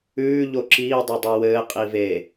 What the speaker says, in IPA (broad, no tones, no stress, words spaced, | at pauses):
ʉː ʎoǁiː dˤodˤʉwɘː qʼive